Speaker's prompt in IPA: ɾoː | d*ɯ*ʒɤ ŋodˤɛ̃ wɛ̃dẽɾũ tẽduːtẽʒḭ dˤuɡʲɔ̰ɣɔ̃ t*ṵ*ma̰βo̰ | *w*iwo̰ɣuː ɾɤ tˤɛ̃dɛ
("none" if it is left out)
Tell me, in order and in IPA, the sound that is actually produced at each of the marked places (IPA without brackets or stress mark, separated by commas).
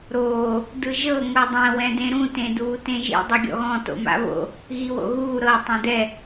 ɯ, o̰, ɣ